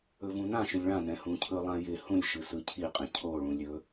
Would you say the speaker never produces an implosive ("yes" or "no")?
yes